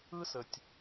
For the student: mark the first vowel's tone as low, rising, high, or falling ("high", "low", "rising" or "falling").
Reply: high